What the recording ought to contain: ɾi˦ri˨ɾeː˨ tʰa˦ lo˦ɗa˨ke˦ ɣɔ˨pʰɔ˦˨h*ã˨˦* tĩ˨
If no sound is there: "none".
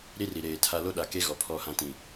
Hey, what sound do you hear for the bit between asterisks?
ã˦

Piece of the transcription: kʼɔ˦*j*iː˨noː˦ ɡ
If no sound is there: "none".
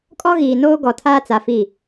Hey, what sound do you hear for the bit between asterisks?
ɣ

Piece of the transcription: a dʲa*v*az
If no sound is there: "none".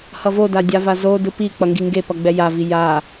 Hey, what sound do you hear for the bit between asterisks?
v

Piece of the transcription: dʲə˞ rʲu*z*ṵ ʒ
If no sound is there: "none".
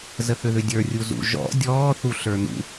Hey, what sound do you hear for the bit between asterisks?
z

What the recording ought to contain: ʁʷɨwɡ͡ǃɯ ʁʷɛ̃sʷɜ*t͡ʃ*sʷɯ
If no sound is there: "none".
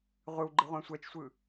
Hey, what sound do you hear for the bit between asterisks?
t͡ʃ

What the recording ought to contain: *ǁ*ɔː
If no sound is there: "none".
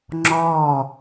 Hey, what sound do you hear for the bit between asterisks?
ŋ͡ǁ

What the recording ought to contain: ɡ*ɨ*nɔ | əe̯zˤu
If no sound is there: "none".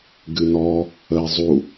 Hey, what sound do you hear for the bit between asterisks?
ɨ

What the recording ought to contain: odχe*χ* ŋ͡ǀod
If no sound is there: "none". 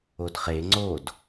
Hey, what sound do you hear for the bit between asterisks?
none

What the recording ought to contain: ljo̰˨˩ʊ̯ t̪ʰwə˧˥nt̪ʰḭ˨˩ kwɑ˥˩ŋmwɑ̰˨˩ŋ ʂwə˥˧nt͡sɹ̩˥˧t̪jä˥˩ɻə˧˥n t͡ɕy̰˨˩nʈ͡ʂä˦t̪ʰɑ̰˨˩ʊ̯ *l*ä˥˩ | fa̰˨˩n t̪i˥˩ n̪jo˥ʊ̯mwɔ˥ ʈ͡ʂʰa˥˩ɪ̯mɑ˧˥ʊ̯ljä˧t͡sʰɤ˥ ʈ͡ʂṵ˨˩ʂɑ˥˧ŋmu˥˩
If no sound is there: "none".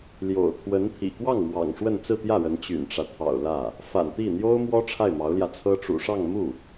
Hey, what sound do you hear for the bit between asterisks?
l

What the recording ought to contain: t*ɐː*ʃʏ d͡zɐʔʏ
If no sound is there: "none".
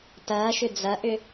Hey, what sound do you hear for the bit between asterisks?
ɐː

